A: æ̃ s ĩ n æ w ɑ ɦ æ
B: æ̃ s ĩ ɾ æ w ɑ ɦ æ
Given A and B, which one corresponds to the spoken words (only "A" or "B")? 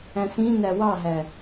A